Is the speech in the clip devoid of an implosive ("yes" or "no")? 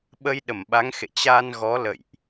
no